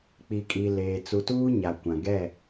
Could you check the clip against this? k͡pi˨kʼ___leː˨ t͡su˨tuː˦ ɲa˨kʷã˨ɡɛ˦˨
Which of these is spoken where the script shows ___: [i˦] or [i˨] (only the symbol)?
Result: i˨